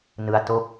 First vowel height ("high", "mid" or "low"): high